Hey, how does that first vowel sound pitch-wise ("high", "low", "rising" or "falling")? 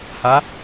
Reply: rising